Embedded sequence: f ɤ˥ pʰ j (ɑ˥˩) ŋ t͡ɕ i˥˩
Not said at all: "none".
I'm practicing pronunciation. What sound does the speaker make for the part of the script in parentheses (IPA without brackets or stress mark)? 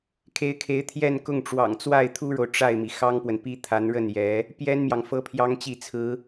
ɑ˥